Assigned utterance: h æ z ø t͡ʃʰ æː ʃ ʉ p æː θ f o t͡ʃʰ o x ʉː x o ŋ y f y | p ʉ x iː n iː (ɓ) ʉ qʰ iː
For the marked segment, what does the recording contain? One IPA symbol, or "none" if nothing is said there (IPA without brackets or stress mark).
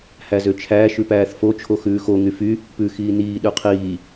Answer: ɗ